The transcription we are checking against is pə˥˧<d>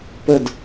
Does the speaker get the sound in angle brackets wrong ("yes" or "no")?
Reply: no